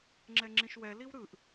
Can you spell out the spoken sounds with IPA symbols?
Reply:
ŋ͡ǁ ɛ ŋ͡ǁ ĩ ʃ w ɛ l i w ɾ ɯ ʔ

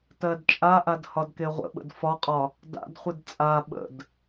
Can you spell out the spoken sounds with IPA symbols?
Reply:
t ɜ d t͡ʃʼ a ʔ a d h ɒ d k e ʁʷ ə̰ ɓ ə̰ d f ɒ qʼ ɒ | d a̰ d χʷ ɨ d t͡sʼ a ɓ ə̰ d

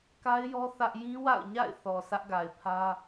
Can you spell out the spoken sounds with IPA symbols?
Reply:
k a˦ ɪ̯ j ɔ˦ θ ä˦ ʔ j ĩ˦ w a̰˦˨ ʊ̯ ɲ a̰˦˨ ɪ̯ θ ɔ˨ sʰ ä˦ ʔ ɡ a˨ ɪ̯ pʰ ä˦

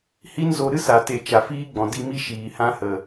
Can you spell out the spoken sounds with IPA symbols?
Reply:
h i˦ n z o˧ ɾ ɨ˦ s a˨ t e˨ t͡ʃ a˨ f iː˦ ɡ͡b ɔ̃˨ d i˧ m i˦ ʃ iː˨ h ã˦ h ə˨

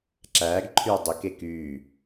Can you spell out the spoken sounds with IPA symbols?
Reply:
ǁ æː ɡ ǃʰ yː dˤ ɵ k e k yː

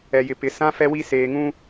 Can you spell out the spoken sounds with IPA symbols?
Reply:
ɛ˨ j ɪ˨ p ɪ˨ s ã˦ f ɛ˦ w i˦ s eː˨ ŋ ũ˦

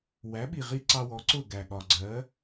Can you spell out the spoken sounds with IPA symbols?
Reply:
w æ˩˥ ɓ i˩ ʁ i˥ ǀ ɑ˧ w ɔ˩˥ ǀ ʊ˥˩ ɡ æ˩ ɠ ɒ˩ ɡ͡ǀ ɜ˩˥

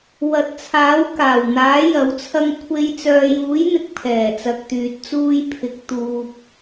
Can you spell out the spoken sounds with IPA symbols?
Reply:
w ɐ˨˥ t̚ t͡sʰ aː˨˥ w k aː˨˩ w n̪ aː˨˥ j ɐ˨ w t͡sʰ ɐ˧ ŋ kʷʰ e˨˧ j t͡s œː˨ j uː˨˥ j n̪ ɪ˨ k̚ pʰ ɛː˨˩ t͡s ɐ˨ k̚ t̪ yː˨ t̚ t͡s uː˧ j pʰ ɪ˨˥ k̚ t̪ uː˨ p̚

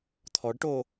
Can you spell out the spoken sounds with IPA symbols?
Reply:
t̪ʰ ɔ ɖ ʈ o

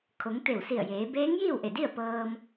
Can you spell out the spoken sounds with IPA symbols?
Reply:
kʰ o˩˧ ŋ t̪ e˧˩ w s i˧˩ ə̯ j eː˩˧ b eː˧˥ ŋ j iː˥˨ w ʔ e˧˩ d i˥˨ ə̯ p ɤː˧ m

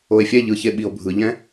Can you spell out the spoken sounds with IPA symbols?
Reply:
o e̯ fʲ ɛ ʎ ɯ ç e ɓ i o̯ bʱ ɯ ʎ ɛ̃

